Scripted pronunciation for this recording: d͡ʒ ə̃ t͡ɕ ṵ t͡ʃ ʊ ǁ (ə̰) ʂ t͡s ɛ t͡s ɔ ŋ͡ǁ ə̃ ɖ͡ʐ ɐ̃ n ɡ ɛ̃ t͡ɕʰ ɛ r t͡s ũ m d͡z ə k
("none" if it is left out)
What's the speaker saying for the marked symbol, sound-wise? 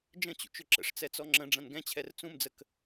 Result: ə̰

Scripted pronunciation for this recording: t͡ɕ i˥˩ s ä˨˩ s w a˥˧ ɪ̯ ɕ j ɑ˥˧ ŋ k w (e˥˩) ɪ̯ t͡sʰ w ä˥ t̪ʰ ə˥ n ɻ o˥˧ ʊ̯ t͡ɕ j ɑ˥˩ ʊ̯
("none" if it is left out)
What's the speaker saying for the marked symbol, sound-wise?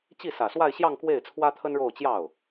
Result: e˥˩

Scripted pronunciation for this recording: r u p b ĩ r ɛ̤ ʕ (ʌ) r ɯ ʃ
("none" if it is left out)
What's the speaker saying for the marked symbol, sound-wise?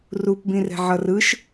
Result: ʌ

